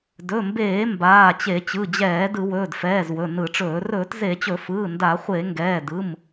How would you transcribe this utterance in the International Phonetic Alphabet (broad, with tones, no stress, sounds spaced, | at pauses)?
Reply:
d ɵ˩˧˩ m b eː˧˩˧ m b aː˩˧˩ t͡ɕ e˧˩˧ t͡ɕ ɯ˩˧˩ d͡ʑ ɛː˧˩˧ d ɯ˧˩˧ w ɵː˩˧˩ d f ɛː˩˧˩ z w ɵ˩˧˩ n ɯ˧˩˧ ʈ͡ʂ ɵː˧˩˧ r ɵː˧˩˧ t z e˧˩˧ t͡ɕ ɵ˧˩˧ f ɯː˩˧˩ n d a˧˩˧ χʷ e˧˩˧ ŋ ɡ ɛː˩˧˩ d ɯ˩˧˩ m